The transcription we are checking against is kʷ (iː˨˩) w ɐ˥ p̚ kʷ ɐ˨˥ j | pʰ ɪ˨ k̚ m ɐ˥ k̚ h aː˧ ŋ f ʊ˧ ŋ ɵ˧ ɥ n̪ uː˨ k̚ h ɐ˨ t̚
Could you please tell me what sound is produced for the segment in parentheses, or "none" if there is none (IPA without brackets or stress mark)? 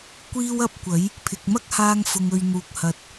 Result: iː˥